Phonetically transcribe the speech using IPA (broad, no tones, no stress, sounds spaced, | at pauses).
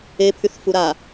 e pʰ y θ f u ɾ a